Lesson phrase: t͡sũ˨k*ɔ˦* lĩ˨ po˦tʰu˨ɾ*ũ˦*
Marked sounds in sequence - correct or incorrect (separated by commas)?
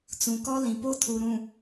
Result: correct, incorrect